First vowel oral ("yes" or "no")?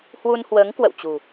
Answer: yes